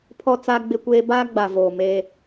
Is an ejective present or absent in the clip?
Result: absent